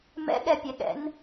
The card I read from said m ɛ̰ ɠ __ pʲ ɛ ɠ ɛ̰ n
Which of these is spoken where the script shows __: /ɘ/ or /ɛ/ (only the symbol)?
ɛ